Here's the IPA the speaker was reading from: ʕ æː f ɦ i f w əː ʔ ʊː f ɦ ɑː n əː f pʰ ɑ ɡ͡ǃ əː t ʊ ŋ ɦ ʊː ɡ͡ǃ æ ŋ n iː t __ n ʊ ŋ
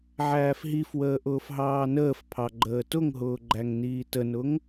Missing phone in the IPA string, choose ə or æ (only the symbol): ə